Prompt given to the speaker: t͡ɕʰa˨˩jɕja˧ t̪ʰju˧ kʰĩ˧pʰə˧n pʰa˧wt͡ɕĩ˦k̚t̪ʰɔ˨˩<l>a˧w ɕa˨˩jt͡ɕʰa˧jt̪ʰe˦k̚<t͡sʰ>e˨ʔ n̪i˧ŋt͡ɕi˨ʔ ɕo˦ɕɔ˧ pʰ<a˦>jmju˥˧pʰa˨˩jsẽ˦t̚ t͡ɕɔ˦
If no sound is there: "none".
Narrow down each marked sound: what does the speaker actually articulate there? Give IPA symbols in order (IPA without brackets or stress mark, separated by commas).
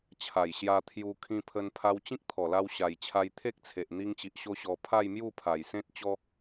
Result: l, t͡sʰ, a˥˧